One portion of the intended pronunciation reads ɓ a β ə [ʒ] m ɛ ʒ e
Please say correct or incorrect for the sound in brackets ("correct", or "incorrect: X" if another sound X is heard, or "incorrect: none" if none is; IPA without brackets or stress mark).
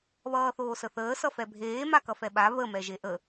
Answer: incorrect: none